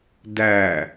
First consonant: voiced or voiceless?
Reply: voiced